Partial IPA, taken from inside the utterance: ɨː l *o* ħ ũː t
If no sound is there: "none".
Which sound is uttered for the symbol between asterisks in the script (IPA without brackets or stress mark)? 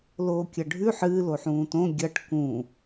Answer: o